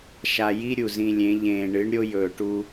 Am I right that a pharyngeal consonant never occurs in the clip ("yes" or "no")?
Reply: yes